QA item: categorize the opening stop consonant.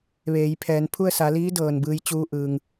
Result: aspirated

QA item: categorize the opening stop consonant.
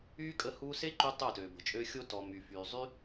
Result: ejective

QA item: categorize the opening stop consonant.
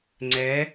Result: click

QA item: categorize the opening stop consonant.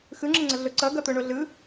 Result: click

